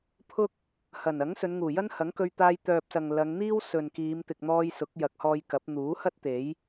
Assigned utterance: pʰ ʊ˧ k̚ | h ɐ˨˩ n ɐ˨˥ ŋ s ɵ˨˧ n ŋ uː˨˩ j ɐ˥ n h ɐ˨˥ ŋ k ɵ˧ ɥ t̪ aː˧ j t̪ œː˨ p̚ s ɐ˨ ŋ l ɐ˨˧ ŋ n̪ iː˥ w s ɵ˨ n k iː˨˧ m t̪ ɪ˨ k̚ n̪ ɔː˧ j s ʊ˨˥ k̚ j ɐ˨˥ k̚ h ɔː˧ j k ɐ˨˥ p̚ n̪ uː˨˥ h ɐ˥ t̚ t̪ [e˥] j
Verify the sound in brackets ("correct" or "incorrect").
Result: incorrect